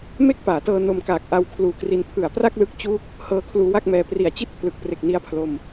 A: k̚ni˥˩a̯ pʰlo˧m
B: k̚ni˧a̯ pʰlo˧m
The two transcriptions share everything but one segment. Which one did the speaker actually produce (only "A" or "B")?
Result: B